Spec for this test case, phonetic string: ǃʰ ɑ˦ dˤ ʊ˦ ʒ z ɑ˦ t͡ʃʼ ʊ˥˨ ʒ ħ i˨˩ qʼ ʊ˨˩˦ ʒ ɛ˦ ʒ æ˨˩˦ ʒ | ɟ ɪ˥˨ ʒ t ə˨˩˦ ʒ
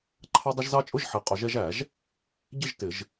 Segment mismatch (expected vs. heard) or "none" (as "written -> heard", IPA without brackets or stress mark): ə˨˩˦ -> ɪ˨˩˦